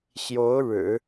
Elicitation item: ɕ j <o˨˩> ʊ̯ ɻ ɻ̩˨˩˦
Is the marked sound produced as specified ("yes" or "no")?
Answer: no